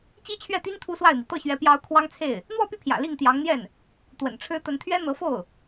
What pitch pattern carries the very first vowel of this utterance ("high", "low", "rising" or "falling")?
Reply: high